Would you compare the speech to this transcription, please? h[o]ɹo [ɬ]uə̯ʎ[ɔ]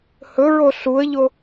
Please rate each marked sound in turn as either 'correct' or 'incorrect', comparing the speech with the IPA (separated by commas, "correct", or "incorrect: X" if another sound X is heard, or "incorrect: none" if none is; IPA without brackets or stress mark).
incorrect: ɵ, correct, incorrect: o